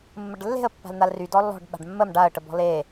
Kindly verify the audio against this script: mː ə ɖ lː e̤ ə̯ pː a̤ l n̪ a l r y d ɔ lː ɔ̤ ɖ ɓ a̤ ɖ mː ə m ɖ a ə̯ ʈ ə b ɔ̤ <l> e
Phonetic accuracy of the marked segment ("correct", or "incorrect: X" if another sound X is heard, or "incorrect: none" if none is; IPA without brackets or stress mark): correct